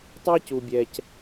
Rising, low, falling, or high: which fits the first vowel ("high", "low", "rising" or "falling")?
high